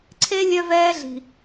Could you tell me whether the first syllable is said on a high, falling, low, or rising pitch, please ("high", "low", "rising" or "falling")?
high